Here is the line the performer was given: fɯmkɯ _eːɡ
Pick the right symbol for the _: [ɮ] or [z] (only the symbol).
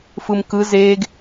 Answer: z